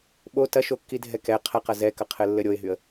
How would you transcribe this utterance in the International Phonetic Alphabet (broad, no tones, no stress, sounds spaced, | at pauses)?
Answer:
ɓ o t ɐ ʃ o kː i dʱ ɛ k ɛ qʰ ɐ q ɐ z ɛ k ɐ qʰ ɘ lː ɘ ɾʲ o ɪ̯ ɦ y ə̯